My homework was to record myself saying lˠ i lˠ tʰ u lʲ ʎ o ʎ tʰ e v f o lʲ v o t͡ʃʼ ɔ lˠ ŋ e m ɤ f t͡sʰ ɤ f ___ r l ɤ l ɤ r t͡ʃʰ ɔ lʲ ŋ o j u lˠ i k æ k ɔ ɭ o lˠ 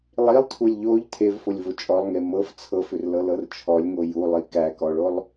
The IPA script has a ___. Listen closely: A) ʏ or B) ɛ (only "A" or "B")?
A